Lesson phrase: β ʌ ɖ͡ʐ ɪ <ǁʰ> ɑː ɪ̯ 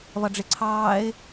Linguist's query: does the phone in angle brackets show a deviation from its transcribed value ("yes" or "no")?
yes